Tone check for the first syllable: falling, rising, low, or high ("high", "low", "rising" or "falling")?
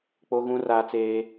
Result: high